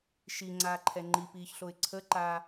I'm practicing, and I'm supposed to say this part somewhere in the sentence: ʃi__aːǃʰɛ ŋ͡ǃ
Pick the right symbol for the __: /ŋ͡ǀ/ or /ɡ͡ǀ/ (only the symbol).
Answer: ŋ͡ǀ